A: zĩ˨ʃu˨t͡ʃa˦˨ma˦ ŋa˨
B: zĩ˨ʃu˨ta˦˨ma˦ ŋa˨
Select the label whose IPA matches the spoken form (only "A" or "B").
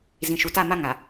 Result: B